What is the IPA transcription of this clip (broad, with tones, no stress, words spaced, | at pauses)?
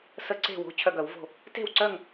sə˧˩˧ǀe̤˧˩wo̤˩˧˩ t͡ɕʰœ˧˩ɡœ˧˩˧wvo̤˧˩ | te̤˥˨wǀœ˥˨ŋ